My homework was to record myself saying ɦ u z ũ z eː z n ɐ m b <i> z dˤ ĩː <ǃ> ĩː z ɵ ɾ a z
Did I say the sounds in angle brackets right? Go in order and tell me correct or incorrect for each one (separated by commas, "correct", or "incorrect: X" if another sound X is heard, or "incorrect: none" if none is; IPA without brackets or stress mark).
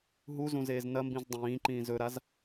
incorrect: ĩ, correct